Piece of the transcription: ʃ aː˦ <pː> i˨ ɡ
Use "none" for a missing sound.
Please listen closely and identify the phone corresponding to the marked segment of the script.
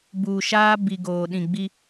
b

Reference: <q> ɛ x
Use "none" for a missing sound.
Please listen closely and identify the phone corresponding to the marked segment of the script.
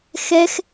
x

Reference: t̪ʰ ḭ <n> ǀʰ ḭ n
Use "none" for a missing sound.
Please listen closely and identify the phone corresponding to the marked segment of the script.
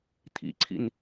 none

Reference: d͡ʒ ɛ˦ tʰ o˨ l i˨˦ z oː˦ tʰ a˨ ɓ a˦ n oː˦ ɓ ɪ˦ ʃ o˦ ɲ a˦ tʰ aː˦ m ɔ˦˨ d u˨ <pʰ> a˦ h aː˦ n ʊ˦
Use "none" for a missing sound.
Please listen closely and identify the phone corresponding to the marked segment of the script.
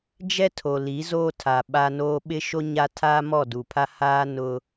pʰ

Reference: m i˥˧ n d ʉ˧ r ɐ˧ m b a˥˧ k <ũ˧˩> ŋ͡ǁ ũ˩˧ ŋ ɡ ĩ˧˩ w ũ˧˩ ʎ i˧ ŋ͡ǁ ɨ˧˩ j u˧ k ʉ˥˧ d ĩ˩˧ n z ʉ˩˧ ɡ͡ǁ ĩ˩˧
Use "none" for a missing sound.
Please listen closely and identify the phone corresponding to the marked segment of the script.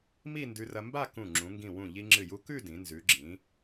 ũ˧˩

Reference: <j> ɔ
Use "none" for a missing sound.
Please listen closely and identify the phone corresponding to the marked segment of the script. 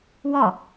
w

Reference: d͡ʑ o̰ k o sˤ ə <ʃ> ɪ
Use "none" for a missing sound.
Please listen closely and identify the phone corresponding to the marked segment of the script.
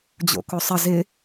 z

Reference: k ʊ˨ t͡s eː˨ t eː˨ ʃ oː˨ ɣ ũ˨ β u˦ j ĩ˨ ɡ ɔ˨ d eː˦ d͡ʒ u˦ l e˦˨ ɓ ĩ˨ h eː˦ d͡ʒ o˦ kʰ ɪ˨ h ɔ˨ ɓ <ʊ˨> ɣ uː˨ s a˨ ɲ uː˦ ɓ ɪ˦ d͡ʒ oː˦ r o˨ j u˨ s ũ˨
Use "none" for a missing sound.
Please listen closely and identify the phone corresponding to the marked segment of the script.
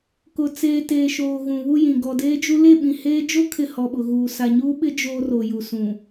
ʊ˨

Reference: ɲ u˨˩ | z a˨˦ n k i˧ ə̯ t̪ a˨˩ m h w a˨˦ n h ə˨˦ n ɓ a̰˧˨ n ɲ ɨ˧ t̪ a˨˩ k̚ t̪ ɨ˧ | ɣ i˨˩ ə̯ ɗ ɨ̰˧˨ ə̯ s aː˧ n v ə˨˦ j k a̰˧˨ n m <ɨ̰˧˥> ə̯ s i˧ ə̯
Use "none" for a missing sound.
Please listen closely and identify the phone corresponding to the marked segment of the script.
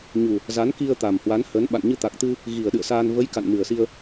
ɨ˨˩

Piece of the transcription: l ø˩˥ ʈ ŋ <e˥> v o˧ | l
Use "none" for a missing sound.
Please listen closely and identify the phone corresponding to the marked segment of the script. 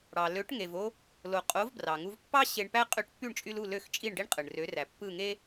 e˩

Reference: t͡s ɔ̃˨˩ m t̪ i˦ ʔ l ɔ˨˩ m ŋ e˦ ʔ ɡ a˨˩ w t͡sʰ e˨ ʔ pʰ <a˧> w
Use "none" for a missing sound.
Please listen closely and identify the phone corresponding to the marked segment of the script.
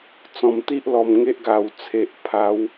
a˨˦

